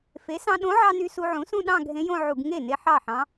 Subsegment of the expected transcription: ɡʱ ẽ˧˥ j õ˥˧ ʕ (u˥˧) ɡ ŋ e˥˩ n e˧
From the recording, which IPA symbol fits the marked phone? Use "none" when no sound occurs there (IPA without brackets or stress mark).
u˧˩˧